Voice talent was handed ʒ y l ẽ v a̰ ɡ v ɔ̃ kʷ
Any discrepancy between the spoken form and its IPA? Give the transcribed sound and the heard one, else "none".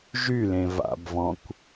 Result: ɡ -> b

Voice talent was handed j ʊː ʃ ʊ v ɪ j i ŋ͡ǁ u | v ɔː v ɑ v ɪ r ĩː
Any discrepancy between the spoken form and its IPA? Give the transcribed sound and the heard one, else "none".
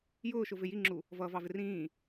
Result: ɔː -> ʌː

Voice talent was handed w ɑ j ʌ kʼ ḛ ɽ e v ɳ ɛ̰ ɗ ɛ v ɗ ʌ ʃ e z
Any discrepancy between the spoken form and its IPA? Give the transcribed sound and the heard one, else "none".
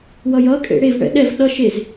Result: ɑ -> ʌ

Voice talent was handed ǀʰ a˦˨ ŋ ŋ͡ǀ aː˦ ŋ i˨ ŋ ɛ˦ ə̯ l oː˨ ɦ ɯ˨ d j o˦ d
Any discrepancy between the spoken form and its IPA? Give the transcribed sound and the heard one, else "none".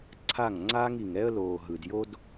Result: none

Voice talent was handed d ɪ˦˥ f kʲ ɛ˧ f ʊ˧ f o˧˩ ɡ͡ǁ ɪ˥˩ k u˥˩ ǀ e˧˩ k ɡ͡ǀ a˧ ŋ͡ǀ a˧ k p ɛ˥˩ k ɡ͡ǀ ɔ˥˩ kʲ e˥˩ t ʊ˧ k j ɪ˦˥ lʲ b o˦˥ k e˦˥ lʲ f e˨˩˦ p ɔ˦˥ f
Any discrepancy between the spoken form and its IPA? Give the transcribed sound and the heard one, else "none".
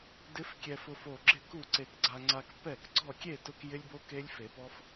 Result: none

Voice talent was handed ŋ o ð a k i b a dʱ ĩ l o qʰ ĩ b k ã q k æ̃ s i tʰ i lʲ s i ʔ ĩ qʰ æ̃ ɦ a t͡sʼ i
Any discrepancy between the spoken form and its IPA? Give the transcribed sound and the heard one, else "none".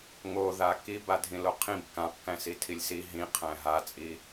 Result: ʔ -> ɦ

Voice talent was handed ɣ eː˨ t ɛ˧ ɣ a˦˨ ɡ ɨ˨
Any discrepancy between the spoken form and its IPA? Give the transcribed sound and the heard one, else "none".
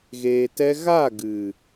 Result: none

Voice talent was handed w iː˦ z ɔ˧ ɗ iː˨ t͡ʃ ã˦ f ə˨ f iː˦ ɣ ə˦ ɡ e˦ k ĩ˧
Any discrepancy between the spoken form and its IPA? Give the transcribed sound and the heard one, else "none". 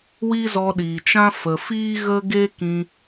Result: none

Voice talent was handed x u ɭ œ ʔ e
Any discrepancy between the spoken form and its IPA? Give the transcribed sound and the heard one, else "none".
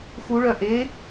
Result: none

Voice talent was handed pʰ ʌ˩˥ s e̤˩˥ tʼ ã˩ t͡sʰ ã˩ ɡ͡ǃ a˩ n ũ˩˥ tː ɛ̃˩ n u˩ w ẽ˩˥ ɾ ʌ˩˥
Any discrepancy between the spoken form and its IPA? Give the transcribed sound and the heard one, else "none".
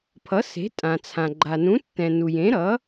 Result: w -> j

